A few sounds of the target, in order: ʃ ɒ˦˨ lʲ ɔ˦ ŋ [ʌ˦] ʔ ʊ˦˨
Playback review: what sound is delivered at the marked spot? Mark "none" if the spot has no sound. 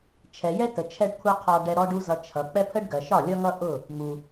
ʌ˦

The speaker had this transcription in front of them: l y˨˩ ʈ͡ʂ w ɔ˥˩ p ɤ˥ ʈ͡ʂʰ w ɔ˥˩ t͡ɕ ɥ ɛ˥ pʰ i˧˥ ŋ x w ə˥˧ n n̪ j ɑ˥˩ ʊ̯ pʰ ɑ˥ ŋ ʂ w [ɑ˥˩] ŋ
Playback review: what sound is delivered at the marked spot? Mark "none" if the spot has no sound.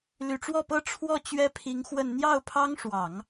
ɑ˨˩˦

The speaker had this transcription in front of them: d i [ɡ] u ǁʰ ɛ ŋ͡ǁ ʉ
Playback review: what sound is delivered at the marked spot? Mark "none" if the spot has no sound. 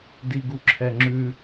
ɡ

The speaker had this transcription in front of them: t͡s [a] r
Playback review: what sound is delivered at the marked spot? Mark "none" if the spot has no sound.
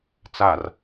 a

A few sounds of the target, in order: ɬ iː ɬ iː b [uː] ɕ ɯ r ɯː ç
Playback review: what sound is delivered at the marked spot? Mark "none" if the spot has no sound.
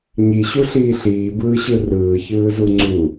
ɯː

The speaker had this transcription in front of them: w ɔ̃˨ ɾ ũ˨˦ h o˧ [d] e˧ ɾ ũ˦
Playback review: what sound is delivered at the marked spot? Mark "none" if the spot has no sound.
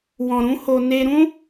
n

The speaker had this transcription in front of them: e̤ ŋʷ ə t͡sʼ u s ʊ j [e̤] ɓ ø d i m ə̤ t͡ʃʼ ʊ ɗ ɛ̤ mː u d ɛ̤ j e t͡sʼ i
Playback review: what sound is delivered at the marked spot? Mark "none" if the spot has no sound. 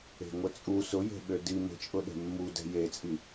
e̤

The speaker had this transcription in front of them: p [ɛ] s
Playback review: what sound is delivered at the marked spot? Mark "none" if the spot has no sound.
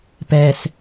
ɛ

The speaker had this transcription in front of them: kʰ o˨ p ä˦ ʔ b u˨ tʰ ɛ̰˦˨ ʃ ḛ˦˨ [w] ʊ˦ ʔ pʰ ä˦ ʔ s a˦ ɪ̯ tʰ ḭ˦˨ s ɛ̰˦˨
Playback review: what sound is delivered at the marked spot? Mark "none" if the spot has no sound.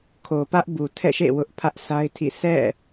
w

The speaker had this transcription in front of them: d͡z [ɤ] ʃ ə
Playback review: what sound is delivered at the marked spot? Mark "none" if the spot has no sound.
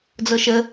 ɤ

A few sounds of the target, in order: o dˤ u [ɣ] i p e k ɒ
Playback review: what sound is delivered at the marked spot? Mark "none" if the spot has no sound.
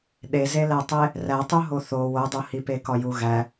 h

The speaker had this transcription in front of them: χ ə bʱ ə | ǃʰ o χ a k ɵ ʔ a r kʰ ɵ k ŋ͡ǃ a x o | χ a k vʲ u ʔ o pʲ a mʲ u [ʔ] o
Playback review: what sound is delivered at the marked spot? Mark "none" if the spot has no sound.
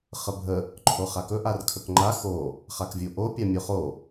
χ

